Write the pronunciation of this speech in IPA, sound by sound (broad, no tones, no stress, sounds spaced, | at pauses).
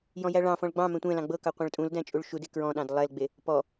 j ɔ̃ j æ ɭ ɑ̃ f ɔ̃ ɭ ɡ͡b ɑ̃ m ɛ̃ tʷ ɛ̃ l ɑ̃ ɡ͡b ɤ k ɑ qʷ ɑ̃ ɭ tʼ ũ l d æ̃ t͡ʃʼ u ɭ ʃ u d e k ɹ ɔ̃ ɗ ɑ̃ d lˠ ɛ l ɡ͡b e | p ɔ